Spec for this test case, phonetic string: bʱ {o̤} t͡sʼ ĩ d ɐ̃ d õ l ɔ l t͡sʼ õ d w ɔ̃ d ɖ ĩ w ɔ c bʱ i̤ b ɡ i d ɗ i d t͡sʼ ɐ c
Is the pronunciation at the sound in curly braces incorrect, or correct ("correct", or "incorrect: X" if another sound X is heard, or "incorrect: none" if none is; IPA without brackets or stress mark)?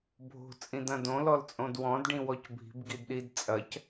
correct